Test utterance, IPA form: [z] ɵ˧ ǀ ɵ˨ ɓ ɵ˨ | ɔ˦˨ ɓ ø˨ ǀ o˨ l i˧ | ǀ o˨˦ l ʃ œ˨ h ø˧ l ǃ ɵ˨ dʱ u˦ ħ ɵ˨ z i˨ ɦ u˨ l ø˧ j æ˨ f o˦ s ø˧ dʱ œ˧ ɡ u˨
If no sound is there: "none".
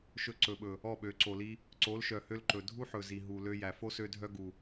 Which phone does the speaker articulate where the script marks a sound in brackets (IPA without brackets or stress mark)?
ʃ